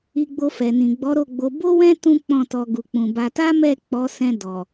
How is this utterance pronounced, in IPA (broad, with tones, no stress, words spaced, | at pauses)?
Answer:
i˧ɡ͡bo˧fɛ˨nĩ˨ ɡ͡bɔ˨˦ɾo˦˨ɡ͡bo˧ bo˦wɛ̃˦ tũ˦k͡pɔ̃˦˨tɔ˧ ɡu˨k͡pũ˨ba˧ ta˦mɛ˦˨ k͡pɔ˨˦sɛ̃˧ dɔ˨